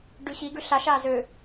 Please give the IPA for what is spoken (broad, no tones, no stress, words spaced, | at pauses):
ɖʉɕiɡʉ ɬaʃa zø